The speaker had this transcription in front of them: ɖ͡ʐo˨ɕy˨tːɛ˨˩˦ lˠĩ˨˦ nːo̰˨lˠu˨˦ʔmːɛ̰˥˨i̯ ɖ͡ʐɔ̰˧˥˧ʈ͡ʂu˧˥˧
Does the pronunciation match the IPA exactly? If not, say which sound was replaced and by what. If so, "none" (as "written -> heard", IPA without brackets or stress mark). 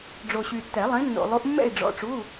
none